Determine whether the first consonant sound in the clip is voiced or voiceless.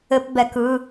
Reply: voiceless